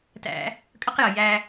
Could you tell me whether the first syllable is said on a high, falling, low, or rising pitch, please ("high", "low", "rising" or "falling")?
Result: high